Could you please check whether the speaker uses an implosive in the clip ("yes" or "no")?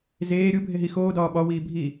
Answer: yes